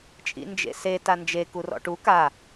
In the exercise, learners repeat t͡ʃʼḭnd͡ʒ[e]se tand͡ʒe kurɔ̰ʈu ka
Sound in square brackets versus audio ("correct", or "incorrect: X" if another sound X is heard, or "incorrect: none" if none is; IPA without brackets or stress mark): incorrect: ḛ